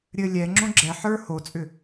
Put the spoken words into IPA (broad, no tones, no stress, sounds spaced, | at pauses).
ɾʲ ɘ lʲ ɛ ŋ͡ǁ õ ɡ͡ǁ ɛ ħ ə˞ h o t͡sʼ ʏ